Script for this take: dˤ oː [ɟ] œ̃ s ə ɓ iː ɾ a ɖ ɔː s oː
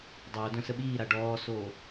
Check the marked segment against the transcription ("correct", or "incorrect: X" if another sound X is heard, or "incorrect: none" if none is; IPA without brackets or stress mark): incorrect: d